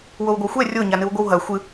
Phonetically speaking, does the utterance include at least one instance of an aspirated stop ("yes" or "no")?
no